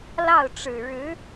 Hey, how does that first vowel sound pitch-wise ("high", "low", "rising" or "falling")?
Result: falling